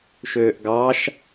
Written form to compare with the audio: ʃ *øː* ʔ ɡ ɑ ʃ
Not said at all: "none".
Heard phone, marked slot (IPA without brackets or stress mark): øː